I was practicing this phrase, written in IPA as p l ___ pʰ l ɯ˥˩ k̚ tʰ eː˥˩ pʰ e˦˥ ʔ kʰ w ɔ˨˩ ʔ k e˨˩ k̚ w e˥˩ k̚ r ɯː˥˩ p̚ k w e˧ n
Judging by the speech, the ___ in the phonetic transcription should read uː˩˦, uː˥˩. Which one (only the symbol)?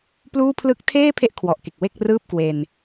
uː˥˩